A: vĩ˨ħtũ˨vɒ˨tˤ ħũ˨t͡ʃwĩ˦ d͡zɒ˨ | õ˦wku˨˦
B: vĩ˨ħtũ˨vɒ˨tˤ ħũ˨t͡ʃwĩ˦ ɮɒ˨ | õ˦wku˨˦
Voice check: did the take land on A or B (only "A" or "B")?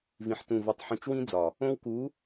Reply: A